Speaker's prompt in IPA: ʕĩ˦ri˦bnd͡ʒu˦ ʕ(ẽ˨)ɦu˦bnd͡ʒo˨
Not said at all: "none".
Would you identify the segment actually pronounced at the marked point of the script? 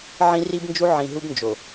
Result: ĩ˨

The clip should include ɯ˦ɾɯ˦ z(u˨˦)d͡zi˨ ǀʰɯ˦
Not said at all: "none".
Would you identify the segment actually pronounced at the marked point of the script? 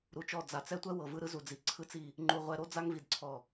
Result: u˨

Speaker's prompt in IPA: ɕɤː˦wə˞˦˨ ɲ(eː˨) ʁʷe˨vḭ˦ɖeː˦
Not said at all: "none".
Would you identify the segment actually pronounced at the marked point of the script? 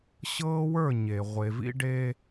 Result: e˨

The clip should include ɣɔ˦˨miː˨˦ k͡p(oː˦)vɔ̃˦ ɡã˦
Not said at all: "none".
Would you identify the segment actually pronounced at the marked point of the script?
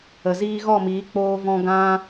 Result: oː˦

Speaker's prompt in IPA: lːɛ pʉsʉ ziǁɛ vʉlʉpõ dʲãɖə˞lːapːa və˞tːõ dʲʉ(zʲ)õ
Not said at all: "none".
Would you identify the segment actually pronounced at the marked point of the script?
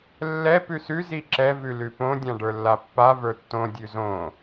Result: z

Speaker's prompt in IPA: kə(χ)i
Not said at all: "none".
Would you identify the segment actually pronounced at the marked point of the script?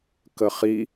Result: χ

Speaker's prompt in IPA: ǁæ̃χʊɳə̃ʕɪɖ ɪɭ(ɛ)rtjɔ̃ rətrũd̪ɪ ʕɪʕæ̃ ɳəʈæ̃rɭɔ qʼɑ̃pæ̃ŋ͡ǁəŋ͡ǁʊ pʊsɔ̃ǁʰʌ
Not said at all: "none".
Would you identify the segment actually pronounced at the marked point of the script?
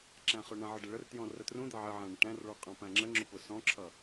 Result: ə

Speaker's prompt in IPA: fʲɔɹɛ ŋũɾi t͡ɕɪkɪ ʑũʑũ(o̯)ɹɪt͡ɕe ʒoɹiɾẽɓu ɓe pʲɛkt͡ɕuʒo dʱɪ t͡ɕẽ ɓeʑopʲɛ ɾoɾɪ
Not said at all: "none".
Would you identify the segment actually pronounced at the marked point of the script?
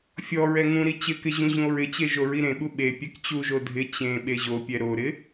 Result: o̯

